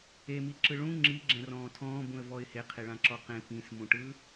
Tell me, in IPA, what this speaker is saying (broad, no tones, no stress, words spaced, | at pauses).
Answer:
emiǁɯ ɭũ ŋ͡ǁiɡ͡ǁɛ̃rɔ̃ː tʰɔ̃ːbũə̯vɔɪ̯ heqʰeɭãǁɔ qẽ pĩsmũʈɯ